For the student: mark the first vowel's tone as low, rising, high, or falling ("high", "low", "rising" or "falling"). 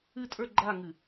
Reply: falling